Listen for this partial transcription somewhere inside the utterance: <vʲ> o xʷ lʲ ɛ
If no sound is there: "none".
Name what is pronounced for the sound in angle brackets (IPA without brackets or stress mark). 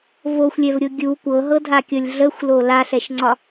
v